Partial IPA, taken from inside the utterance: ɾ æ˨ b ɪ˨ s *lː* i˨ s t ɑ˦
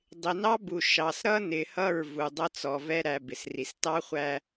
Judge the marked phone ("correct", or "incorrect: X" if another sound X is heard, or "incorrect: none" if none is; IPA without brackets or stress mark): incorrect: r